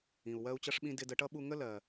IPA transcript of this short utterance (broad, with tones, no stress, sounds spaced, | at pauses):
ĩ˨ u̯ w ɜ˦ u̯ t͡ɕ ʌ˦ ʂ ɓ ĩ˦ d ɪ˧ d ə˧ ʈ ʌ˦ ɓ u˧ ŋ ə˦ l ɜ˨